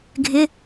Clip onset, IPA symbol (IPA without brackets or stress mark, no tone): ɡʱ